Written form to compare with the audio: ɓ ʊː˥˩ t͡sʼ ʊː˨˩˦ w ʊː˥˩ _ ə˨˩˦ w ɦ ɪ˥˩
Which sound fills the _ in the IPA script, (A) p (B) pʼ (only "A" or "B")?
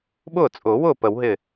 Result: A